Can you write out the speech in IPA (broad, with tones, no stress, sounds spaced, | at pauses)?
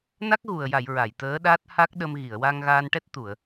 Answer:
n a˦˥ k̚ ɣ u˨˩ ə̯ j a˨˩˨ j ɹ a˨˩˨ j t̪ əː˧˥ ɗ aː˦˥ t̚ h a˦˥ k̚ ɗ ə˧ m ɣ i˨˩˨ ə̯ w aː˧ ŋ ɣ aː˧ n ʈ ɛ˦˥ t̚ t̪ u˨˩˨ ə̯